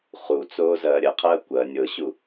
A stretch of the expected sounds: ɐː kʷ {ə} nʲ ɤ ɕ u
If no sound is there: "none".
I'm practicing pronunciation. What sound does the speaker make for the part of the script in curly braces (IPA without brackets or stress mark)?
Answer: ɐ